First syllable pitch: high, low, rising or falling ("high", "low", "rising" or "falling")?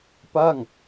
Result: falling